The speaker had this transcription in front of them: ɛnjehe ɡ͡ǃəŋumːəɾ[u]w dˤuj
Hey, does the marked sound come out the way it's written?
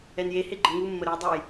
no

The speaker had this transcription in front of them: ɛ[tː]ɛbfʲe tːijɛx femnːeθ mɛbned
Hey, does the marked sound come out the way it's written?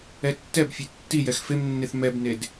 yes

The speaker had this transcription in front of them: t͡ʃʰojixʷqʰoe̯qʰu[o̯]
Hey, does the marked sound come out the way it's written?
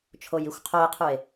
no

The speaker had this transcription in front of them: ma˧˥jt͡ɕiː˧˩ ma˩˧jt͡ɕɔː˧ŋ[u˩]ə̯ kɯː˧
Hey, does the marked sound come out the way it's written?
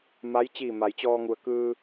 yes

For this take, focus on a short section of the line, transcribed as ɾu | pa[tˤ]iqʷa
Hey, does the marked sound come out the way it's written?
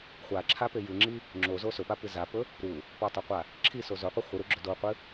yes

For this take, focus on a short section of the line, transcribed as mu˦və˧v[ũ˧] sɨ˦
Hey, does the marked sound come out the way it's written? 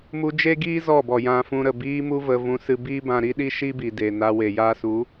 yes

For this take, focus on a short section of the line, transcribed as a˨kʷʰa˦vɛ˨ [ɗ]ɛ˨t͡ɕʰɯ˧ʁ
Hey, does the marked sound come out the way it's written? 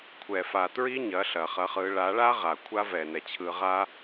no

